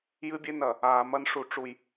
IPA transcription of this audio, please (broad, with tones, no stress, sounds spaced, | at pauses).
j ɨ˦ bʲ e˦ n ɐ˨ | aː˨ m ɐ˦ n ʂ u˨ ʈ͡ʂ u˨ j